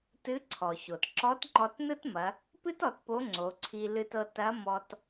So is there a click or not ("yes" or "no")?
yes